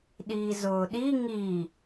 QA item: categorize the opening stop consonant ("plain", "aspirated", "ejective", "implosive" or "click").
implosive